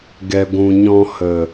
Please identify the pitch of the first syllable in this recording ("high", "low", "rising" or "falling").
low